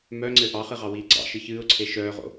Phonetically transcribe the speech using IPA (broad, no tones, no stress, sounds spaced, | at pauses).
m œ ŋ͡ǀ ɘ ʔ ɑ χ ɨ ʁ ɑ w iː ɡ͡ǀ ɑ̰ ʃ ɨ ç ɨː ʊ̯ ǀʰ e ʃ œː ʁ o̰